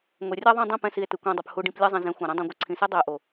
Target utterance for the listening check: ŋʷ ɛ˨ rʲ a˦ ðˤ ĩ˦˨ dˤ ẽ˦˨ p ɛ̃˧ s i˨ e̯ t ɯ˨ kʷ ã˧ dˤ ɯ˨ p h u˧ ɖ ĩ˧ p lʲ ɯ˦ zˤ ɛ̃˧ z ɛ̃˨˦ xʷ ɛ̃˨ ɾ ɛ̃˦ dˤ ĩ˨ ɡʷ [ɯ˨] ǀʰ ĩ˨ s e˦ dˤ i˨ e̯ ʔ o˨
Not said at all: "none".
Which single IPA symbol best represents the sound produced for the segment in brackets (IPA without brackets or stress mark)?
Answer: ɯ˨